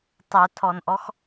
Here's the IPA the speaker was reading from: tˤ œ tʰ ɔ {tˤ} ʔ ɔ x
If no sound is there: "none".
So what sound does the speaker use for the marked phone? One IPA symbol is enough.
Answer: n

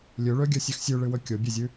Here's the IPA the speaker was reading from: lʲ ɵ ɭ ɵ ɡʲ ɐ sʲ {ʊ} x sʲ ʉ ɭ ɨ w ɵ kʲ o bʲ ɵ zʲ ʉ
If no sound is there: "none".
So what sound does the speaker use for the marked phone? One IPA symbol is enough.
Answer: ʉ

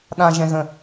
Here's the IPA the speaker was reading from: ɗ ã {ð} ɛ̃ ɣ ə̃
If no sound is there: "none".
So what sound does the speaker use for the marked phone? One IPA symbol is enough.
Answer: ʒ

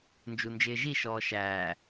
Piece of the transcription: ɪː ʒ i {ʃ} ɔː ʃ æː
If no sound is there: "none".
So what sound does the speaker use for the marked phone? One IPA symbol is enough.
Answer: ʃ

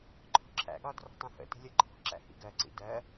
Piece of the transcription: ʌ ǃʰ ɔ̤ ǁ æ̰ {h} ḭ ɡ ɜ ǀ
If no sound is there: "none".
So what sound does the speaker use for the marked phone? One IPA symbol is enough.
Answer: h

